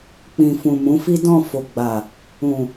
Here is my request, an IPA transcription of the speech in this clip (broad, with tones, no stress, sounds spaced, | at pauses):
k͡p ĩ˨ f ũ˨ m ũ˨˦ f i˦ d ɔ̃˦˨ f o˨ ɡ͡b a˨ | ũ˨